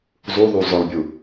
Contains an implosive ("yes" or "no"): no